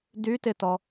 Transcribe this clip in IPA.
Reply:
d y t ɪ t ɔ

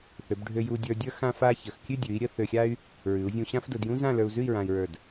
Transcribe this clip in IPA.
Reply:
θ ø˩˧ b ɖʱ ø˧ j u˧ dʲ ə˞˧ dʲ ə˞˥ x ã˥ f a˥ ç ə˩˧ x kʲ ʉ˥˧ dʲ ʉ˩˧ i̯ ɾʲ ə˧ θ ø˧ xʲ a˥ y̯ | ɹ ʉ˩˧ u̯ zʲ ũ˧ ɕ ã˥ f d ʊ˩˧ d j ũ˥ z ã˥˧ l ə˞˧ u̯ z ʉ˥˧ i̯ ɹ ã˧ i̯ ɹ ə˞˧˩ d

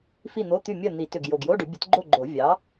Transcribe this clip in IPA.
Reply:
f i˥˨ n̪ o˧˥˧ t̪ y˥˨ mʲ ɜ˥˨ n̪ i˨˩˦ t ʏ˨˩ ɡ j o˨˩ ɡ j o˧˥˧ ɖ ʏ˨˩˦ bʲ ə˨˥ t ɡ͡ǃ o˥˨ ɡ͡ǃ o˨˩˦ vʲ ɑ˨˥

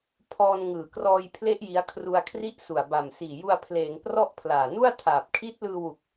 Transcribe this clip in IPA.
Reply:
pʰ ɔː˧ n ŋ ɯː˨˩ k r ɔː˧ j pʰ l e˦˥ ʔ j i˦˥ a̯ kʰ r u˧ a̯ kʰ r i˥˩ ʔ s u˨˩ a̯ b a˨˩ m s iː˨˩ j u˧ a̯ pʰ l eː˩˦ ŋ p r ɔ˦˥ ʔ pʰ l aː˨˩ n u˥˩ a̯ tʰ aː˨˩ p̚ kʰ i˦˥ t̚ l ɯː˧ w u˨˩ k̚

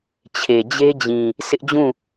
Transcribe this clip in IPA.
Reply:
t͡ɕʰ e˨ d͡ʑ e˦ d͡ʑ ĩ˨ | s ɪ˦ ʔ d͡ʑ ũ˦˨

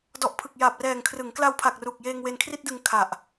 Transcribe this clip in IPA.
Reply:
d ɔ˨˩ ʔ pʰ ɯ˨˩ k̚ j aː˨˩ p̚ r ɛː˨˩ ŋ kʰ r ɯ˩˦ ŋ k l a˧ w pʰ a˨˩ k̚ r u˨˩ k̚ j eː˧ ŋ w e˧ n kʰ r i˥˩ t̚ d ɯ˧ ŋ kʰ a˨˩ ʔ

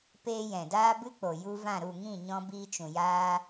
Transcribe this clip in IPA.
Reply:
p eː˧ j ɛ̃˨ d aː˦ b ɨ˦ k͡p o˨ j u˧ v ã˦˨ ɾ u˦˨ ŋ ĩ˦˨ ɲ ɔ̃˧ b iː˧ t͡ʃ ũ˨ j aː˧

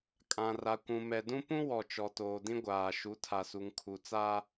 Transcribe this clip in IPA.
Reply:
kʼ ã˨ r a˨ kʷ ũ˨ m ɛ˨ d ũ˦ p ũ˦ w ɔ˨ t͡ʃ ɔ˨ t oː˨ d ĩ˦ ɡʷ aː˨ ʃ u˨˦ tʰ a˨ s u˨ ŋ kʰ u˨ t͡s a˦

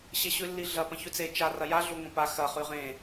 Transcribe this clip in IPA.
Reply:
ɕ e ɕ ʉ lː i ɮ ɐ p ɐ̃ ç ʉ t͡s e t͡ʃ a r ɐ j a ɮ u ŋʷ ɐ̃ p a x ɐ χ ʉ ʁ ẽ

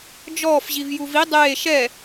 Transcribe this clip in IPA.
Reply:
d͡ʒ ɔː f ʑ i v j u v i dˤ eː ʃ ɛ

